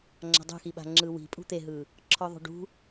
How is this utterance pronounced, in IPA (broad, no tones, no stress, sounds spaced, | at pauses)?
ŋ͡ǁ a̤ dˤ ṳ x i ɓ a̤ ŋ͡ǁ ɯ w i̤ pʼ ṳ t̪ e ɦ ɯ | ǁʰ ɔ ðˤ ṳ ɖ ṳ